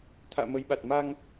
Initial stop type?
aspirated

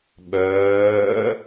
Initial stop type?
implosive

